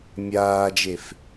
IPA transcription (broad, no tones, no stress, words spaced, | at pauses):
mʲaːd͡ʒef